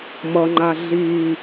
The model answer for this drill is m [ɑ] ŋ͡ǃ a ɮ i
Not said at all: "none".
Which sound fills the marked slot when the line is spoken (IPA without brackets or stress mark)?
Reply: ʌ